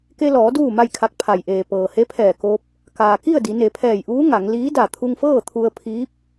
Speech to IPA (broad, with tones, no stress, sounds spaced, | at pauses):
k e˧ l ɔː˩˧ d uː˥˨ m a˥˨ j kʰ a˧ k̚ pʰ a˩ j ʔ eː˩ p ɤː˩ h e˧˥ pʰ ɛː˧˩ k oː˧ p̚ | k aː˩ k i˥˨ ə̯ d i˩˧ n e˩˧ pʰ ɛː˧˩ j ʔ uː˧˥ ŋ a˩˧ ŋ l iː˧˥ d a˧˩ t̪ʰ u˧ ŋ f ɤː˥˨ t̪ʰ u˧ ə̯ pʰ iː˧˥ p̚